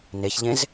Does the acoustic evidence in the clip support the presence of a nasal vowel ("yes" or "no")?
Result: yes